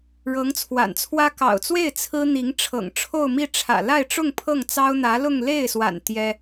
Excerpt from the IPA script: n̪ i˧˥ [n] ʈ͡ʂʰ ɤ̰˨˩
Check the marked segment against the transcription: incorrect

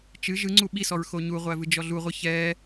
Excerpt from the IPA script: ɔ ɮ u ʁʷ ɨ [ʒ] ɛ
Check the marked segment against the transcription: incorrect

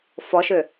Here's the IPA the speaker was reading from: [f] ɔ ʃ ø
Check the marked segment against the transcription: correct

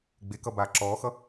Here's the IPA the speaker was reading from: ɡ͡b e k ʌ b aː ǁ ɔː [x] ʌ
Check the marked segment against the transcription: correct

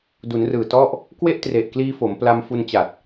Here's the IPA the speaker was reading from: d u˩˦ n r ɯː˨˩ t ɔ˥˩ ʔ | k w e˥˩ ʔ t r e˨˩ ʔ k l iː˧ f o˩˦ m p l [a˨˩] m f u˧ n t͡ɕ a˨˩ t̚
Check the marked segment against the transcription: incorrect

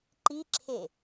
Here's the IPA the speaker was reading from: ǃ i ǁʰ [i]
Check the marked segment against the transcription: incorrect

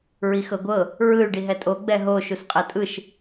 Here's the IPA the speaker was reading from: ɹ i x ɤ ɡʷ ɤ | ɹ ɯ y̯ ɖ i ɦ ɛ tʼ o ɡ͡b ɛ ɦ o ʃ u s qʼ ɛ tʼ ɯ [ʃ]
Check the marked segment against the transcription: correct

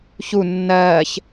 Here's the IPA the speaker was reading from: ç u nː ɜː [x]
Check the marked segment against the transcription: incorrect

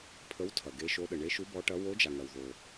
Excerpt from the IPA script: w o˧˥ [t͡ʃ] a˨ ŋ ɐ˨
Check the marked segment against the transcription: incorrect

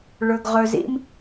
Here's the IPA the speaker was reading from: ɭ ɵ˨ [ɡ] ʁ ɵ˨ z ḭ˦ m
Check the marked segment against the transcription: correct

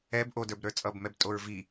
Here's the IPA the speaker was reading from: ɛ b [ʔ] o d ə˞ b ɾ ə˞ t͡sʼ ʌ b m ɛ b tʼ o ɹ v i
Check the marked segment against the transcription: correct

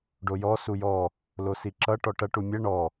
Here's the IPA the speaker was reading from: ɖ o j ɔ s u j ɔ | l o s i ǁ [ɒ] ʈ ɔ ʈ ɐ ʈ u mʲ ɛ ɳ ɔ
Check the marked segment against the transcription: incorrect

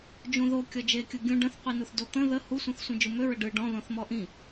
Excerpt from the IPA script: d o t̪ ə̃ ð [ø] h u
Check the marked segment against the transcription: incorrect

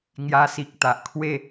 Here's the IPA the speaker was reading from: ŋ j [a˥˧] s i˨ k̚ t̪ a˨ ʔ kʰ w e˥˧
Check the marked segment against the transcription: incorrect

